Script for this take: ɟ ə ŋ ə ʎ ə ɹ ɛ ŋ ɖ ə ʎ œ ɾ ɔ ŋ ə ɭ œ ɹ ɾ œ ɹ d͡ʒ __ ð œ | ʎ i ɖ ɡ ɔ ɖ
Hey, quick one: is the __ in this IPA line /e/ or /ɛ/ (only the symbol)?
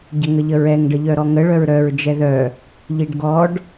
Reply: ɛ